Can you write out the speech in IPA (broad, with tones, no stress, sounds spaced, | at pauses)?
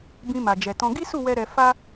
b ĩ˧ m a˨ d͡ʒ ɛ˨ t ɔ̃˧ ɡ i˦ s u˦˨ w ɛ˧ ɾ ɛ˧ f a˦